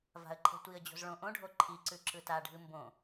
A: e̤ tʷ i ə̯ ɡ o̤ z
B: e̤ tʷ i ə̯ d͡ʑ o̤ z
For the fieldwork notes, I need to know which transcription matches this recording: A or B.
B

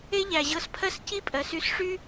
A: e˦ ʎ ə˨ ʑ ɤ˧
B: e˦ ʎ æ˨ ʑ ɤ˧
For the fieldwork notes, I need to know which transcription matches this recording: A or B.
B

